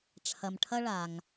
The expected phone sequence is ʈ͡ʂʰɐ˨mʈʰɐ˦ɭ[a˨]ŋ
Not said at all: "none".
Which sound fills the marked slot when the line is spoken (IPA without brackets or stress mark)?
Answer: a˨